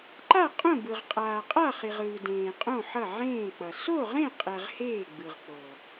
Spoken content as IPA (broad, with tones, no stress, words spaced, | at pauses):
ǃa˥˨ qʼõ˥˨bɯ˨ʁ qʼaː˨qʼa˥˨χi˨ʁ ɯː˨dẽː˨qʼõ˥˨ ħʌ˥˨ʕẽː˥˨k͡pʌ˨ so˥˨ʁẽ˥˨qʼɛ˨ʁ heː˥˨ɡ͡bɯ˨ʁk͡po˨